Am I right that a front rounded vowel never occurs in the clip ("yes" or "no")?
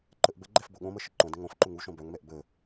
no